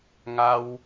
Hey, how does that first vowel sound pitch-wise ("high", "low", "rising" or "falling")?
high